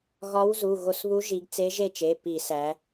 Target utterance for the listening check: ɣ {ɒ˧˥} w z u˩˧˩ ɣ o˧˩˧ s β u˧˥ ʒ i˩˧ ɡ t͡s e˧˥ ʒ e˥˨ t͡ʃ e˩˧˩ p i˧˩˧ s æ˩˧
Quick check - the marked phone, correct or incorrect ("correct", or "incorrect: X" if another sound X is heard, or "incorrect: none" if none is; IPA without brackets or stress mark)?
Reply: correct